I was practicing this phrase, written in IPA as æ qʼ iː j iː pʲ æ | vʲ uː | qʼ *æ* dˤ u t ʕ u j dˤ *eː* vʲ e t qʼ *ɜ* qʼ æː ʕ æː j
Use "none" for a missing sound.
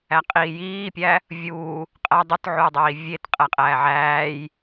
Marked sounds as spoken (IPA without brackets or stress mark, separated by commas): æ, iː, æ